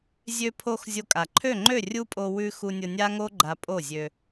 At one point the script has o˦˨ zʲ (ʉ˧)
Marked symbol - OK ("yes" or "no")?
no